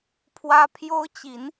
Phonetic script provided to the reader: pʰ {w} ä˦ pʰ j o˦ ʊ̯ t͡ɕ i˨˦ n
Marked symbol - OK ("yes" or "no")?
yes